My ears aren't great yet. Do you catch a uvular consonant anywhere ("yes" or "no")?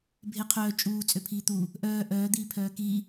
yes